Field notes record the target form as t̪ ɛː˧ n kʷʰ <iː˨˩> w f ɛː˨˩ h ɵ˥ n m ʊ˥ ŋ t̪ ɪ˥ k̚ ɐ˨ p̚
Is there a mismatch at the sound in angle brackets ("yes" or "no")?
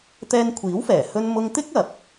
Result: yes